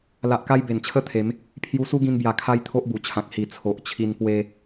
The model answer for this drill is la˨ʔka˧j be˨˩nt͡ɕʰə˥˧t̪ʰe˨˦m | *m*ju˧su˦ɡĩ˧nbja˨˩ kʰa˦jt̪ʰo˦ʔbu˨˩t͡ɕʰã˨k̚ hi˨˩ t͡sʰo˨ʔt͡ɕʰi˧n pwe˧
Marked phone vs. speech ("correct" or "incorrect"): incorrect